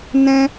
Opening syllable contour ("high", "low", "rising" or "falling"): high